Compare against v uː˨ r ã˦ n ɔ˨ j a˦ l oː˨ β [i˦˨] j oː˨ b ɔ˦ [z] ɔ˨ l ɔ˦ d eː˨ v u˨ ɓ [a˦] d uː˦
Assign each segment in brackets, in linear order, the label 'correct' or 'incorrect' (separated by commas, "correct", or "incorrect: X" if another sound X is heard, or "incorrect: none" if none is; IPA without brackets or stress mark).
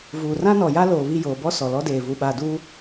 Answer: correct, incorrect: s, incorrect: a˨